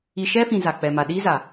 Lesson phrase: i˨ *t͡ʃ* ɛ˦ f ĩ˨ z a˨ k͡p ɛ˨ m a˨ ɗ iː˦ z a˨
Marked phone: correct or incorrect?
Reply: incorrect